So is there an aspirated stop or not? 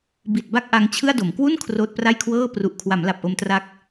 yes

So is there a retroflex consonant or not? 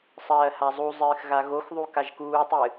no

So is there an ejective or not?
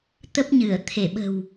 no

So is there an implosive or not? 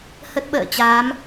yes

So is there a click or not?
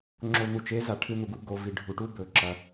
yes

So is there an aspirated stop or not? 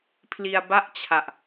yes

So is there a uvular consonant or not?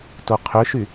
yes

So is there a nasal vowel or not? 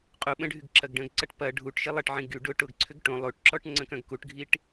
yes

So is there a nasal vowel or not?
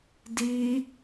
no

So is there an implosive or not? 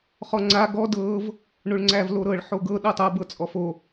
yes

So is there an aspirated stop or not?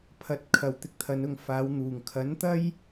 yes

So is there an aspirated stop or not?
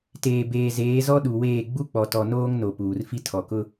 yes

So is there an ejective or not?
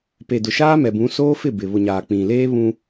no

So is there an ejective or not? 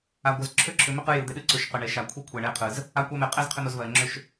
yes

